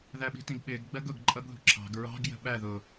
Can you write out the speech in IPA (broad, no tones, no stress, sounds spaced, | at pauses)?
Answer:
ð æ ɓ i̤ t ĩ ɡ ɓ ɪː ɡ ɡ͡b ɜ ɡ ʊ ɡ ǃʼ ʌ ɡ ð ṳ ǁʰ ɑ̤ ɡ ɹ ɑ̤ ɡ j ə̤ ɓ æ ð ʊ